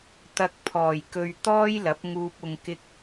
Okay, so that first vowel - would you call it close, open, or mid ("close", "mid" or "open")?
open